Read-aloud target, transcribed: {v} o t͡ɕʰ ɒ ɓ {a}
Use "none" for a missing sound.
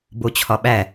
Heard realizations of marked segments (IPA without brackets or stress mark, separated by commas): b, æ